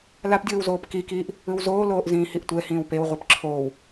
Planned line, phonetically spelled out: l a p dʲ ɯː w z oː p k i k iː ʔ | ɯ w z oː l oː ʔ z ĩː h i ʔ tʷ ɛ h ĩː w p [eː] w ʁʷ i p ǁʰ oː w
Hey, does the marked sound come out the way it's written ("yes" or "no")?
no